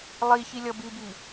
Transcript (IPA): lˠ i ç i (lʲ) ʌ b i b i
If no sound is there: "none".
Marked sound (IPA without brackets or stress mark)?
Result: lʲ